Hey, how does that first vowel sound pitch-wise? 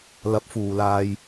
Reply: rising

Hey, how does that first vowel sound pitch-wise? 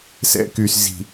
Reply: high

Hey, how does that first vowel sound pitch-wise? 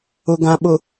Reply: low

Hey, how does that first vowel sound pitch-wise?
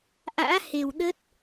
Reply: rising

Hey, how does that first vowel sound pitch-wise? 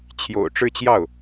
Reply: low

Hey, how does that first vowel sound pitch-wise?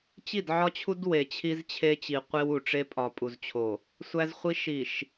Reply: falling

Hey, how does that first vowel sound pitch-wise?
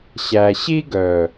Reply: low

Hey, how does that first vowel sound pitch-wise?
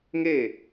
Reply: falling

